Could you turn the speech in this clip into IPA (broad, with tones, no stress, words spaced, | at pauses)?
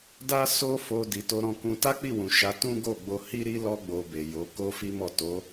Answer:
da˦so˦fo˧ di˨to˧ ɾɔ̃˧kũ˧ ta˦k͡pi˦˨wũ˨ ʃa˨˦tũ˦ɡo˦˨ ɡ͡bo˧hi˦ɾi˦ lɔ˦ ɡ͡bo˧be˨jo˨˦ ko˦ fi˦mɔ˦˨ to˨˦